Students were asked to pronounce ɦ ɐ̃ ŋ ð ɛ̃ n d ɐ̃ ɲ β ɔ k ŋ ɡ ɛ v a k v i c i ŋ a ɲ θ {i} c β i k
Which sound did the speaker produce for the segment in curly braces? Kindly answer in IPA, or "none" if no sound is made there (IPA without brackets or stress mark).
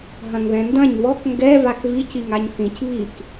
ĩ